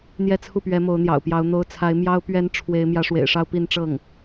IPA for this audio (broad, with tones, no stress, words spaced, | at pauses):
n̪jɛ˥˧t͡sʰu˥˩pɥɛ˧˥ mo˧˥ʊ̯n̪jɑ̰˨˩ʊ̯pjɑ˧˥ʊ̯ n̪o˧˥ʊ̯t͡sʰa˧˥ɪ̯ mjɑ˥ʊ̯ pɥɛ˥n ʈ͡ʂʰwe˧˥ɪ̯ mjä˧˥ʂwḛ˨˩ɪ̯ʂɑ˥˧ʊ̯ pi˥˧nʈ͡ʂɤ˥˩ŋ